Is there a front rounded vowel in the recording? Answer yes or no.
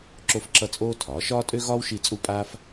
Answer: yes